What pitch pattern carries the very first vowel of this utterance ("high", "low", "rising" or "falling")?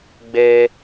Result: high